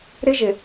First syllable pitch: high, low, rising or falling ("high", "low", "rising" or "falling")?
high